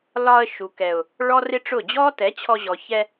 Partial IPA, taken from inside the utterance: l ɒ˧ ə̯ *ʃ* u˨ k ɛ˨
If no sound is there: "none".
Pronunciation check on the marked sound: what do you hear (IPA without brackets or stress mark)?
ʃ